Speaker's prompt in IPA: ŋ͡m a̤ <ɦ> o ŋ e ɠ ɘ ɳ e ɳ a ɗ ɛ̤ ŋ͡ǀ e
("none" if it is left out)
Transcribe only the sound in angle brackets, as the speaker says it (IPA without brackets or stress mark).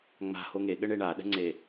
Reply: h